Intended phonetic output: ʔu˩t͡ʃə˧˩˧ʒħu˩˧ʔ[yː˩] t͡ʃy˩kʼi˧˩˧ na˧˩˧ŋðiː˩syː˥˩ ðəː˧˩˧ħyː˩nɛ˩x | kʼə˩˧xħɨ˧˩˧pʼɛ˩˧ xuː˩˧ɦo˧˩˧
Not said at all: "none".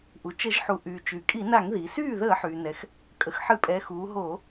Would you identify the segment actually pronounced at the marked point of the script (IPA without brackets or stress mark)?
yː˩